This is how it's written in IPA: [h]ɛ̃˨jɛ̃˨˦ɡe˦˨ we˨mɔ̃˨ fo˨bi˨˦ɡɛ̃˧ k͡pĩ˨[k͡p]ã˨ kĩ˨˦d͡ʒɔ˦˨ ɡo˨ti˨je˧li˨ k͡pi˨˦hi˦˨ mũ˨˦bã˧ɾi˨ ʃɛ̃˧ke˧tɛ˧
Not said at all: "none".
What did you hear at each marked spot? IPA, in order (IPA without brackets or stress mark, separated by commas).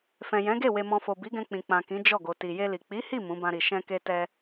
f, k͡p